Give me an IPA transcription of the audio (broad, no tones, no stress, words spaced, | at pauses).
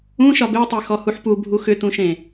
ũʃɒb etˤe xɔhuħpubʱu xʏtũʃẽ